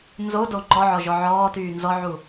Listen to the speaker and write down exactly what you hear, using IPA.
n z o d o ŋ͡ǃ ɔ ʕ ɔ ʒ ɔ ʕ ɔː t yː n z ɔ ʕ u

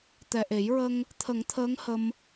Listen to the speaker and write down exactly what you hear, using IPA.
t̪ ɛ˨˩ ʔ e˨˩˦ j ɹ ə˧ ŋ | t̪ʰ ə˨˩˦ ŋ t̪ʰ əː˧˥ ŋ h ə˧ m

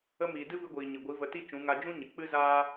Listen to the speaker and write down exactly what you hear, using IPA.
ə˧ m iː˨ d ɨ˦ v ɨ˧ ɡʷ iː˨ ɲ ɨ˨ ɡʷ i˨˦ v ə˧ t i˦ t͡ʃ ũ˨˦ ŋ a˧ d͡ʒ ũ˦ ɲ ɨ˨ k͡p ɨ˦ z aː˦

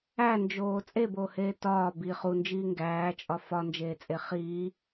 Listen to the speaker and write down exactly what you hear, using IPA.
æ n d͡ʒ oː t͡sʼ e b oː h eː t ɒː b i χ u n d͡ʒ iː ŋ ɡ æː t͡ʃʼ ɒ f ɒ n d͡ʒ eː t͡sʼ e χ iː

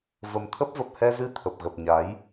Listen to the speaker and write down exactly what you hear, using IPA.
v ə˨˩ m t̪ʰ ə˦˥ p̚ v ə˨˩ p̚ h ɛ˧ z ɨ˧ t̪ʰ ə˨˩ p̚ ɣ ə˨˩ p̚ ɲ a˨˦ j

